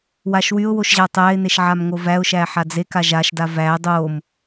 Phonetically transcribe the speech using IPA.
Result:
w a ʃ w y ʊ̯ w o ʃ ʑ a tˤ æ ɪ̯ n e ʃ ʕ a m ŋ o v æ ʊ̯ ʃ æ ħ a d͡z e k a ʒ a ʃ d a v æ dˤ o m

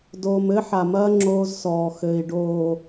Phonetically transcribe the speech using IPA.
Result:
d oː˨ m ɘː˦ ħ a˨ m ɐː˦ ŋ͡ǁ oː˦ z s ɔː˨ x ɘː˨ i̯ ɖ oː˨

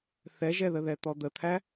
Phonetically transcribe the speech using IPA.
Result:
θ ɛ ʒ ɛ ð ə ð ɛ t̪ ɔ d̪ ə t̪ʰ æ

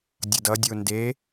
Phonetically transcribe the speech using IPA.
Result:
dʲ ʌ d ʌ dʲ o n d e

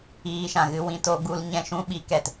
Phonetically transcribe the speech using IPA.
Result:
iː˧ ʃ ã˨ ɣ ɨ˧ w ĩ˧ t o˧ ɡ u˧ l ɲ ɛ̃˧ ʃ ũ˧ ɓ i˦ k ɛ˧ t

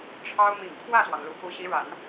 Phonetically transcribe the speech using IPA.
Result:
ʈ͡ʂʰ ɑ˥ ʊ̯ m ḭ˨˩ ŋ kʰ w ä˥˩ s w ɑ˩ ŋ l ṵ˨˩ x u˧˥ ɕ i˧˥ ɻ a̰˨˩˦ n

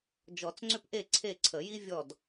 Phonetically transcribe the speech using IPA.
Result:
d͡ʒ ɔ˨˩˦ t͡s ŋ͡ǀ ʏ˦˨ p ʔ e˦˨ ǀʰ e˦˨ ǀʰ ə˨˩˦ j i˥ vʲ ɔ˦˨ d

